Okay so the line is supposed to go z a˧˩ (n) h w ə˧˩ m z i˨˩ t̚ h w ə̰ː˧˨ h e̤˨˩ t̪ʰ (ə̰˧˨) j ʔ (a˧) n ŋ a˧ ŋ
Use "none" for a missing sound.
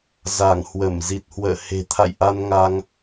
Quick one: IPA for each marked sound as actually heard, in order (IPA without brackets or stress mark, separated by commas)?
ŋ, a̰˧˨, a˧